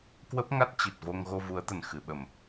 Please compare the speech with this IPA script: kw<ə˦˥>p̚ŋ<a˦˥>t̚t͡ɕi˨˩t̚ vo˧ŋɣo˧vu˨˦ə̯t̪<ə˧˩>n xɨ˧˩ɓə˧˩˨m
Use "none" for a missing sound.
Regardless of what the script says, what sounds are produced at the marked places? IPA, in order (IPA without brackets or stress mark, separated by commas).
ə˦˥, a˦˥, ə˧˩